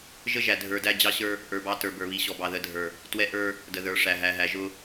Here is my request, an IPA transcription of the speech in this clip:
ʒə˦ʒæ˨dʱə˞˨dæ˦ d͡ʑɑ˦ɕə˞˦ | ʔə˞˨bɑ˦ tə˞˨bə˞˨βi˨ ɕɔ˨bɑ˨ ðə˨˦dʱə˞˨ | twɛ˦ʔə˞˦ | də˨ðə˞˨˦ʂæ˨ ɦæ˨ɦæ˨ʒʊ˦

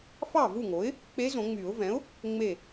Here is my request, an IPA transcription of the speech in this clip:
fɑ˥˩vu˥˩ŋo˩˥ɪ̯ | k͡pe˧˥zõ˨˩˦ŋ͡my˨˩˦ʊ̯vɛ̃˩˥ʊ̯ | ŋ͡me˧˩

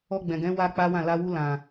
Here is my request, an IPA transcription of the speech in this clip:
ɔ˧ɡ͡bɛ̃˨ɡɛ̃˨˦ wa˦k͡pa˦wã˦˨ la˧wu˧ lã˨

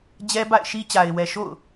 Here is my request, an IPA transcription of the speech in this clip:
d͡ʑɛ˦ba̰˦˨ɪ̯ʃi˦ t͡ɕa˨ɪ̯wɛ˨ʃo̰˦˨ʊ̯

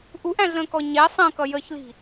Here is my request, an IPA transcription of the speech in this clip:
ʔuʔæ̃ɮə̃ːkɔ ɲɛ sˤə̃ːkʌ jəçli̤

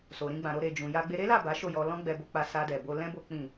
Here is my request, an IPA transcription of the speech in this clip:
so˨ɾĩ˧ɡ͡bã˨ɾo˧ ɾe˨d͡ʒũ˨ ja˧ɡ͡be˧ ɾe˦la˦˨ ba˨˦ʃo˦˨ jɔ˧ lɔ̃˦ɡ͡bɛ˧bo˧k͡pa˧ sa˧dɛ˨bo˧ lɛ̃˦ bo˦ k͡pĩ˦˨

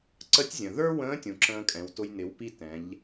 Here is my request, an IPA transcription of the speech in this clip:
ǀə˧˥tʲzʲə̃˩ ðə˞˥wə̃ː˧˥tʲũ˩ ǁə̃ː˧kʼɛ̃˩˧wtʊ˧j nɪ˩˧wpi˧ tɛ̃˩˧ʎ

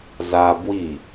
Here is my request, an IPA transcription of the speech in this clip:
za bwi

